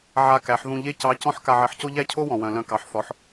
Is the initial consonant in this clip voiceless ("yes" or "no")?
no